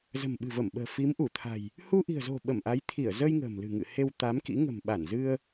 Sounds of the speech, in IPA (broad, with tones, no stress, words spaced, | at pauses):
zə̤˨˩mɓɨ̤˨˩və˧˩mɓə̤ː˨˩ fi˨˦mʔu˧˩t̪ʰa̤˨˩j | hu˧ʔi̤˨˩ə̯zo̤˨˩ ɓə˧˩mʔa˨˦jt̪ʰi˧˩ə̯ zə˧j ŋə̤ː˨˩mlɨ̤˨˩ŋɨ̰˧˨ he˧wt̪a˨˦mkḭ˧˥ ŋə̤˨˩m ɓa˧˩nzɨ˧ə̯